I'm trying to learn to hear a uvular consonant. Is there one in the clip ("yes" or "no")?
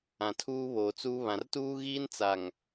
no